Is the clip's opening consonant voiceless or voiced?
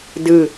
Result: voiced